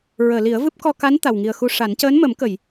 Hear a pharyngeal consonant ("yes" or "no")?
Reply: no